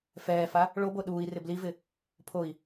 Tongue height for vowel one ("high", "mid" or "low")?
mid